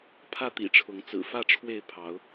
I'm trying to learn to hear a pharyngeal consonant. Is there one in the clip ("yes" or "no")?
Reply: no